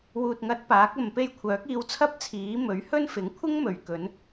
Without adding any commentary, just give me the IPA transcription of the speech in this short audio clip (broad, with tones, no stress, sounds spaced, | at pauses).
w uː˨ t̚ ŋ ɐ˨˥ t̚ p aː˨˥ k̚ ɐ˨ m p e˧ j kʷʰ œː˨˥ k̚ iː˧ w t͡sʰ ɐ˥ p̚ t͡sʰ iː˨˥ m ɵ˨˥ ɥ h ɵ˥ n f ɪ˨˥ ŋ kʷʰ ɪ˥ ŋ m ɵ˨ ɥ k ɵ˨˧ n